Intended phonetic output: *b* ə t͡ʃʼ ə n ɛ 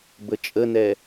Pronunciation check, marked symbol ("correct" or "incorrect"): correct